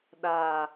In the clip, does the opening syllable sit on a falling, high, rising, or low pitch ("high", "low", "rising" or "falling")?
low